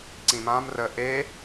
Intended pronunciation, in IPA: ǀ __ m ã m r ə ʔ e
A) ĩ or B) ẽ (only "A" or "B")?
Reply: A